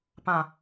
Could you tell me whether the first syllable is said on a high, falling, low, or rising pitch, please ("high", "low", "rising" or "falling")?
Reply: low